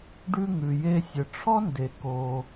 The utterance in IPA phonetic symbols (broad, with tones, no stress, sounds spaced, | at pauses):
ɖ ʉ˧ ŋ ʉ˩ j e˧ sʲ ə˩ ʈ͡ʂʰ ɔ˥ n d e˩ k o˩